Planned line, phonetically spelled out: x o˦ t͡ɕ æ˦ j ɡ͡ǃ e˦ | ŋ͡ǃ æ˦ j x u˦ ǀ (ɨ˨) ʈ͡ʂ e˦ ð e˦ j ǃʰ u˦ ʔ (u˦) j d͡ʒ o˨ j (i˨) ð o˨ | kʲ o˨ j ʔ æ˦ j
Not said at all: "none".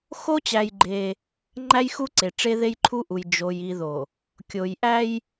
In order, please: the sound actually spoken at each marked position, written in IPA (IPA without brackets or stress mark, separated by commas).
e˨, u˨, i˨